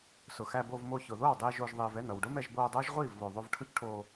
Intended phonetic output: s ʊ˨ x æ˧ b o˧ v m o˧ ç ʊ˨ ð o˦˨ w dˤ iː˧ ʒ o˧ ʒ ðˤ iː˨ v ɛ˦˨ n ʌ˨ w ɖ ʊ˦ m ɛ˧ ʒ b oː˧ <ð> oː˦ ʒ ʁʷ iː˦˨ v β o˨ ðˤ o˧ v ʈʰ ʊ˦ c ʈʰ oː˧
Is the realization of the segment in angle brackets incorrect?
yes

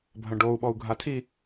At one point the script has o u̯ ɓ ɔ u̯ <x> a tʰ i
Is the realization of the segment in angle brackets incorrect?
yes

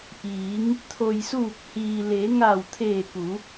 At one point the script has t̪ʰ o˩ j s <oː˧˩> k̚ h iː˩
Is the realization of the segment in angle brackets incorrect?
yes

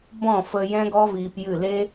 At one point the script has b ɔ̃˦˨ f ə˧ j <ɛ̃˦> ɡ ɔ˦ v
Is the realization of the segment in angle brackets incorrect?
no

